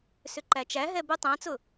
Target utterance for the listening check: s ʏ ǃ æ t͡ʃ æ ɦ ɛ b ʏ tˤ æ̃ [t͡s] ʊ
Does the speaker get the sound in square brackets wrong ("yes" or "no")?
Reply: no